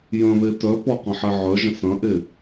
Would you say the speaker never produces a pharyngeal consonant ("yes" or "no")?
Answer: no